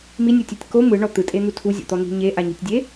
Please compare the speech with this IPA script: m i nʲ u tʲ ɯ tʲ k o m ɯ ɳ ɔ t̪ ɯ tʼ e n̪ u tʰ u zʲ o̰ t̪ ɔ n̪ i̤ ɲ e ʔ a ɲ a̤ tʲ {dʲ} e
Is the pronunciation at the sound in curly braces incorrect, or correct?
correct